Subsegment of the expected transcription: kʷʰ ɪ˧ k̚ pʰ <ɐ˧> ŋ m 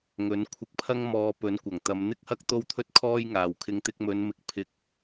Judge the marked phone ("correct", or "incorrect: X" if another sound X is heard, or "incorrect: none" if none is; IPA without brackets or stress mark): incorrect: ɐ˥